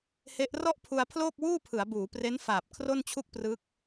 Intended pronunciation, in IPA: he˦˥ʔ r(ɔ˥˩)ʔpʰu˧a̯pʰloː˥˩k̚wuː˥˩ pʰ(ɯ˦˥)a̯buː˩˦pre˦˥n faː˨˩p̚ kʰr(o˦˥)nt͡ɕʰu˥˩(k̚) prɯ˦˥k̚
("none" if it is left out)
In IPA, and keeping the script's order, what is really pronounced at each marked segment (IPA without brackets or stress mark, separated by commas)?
ɔ˥˩, ɯ˩˦, o˥˩, k̚